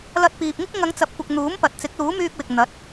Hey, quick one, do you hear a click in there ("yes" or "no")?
no